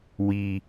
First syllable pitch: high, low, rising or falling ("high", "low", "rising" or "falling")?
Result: high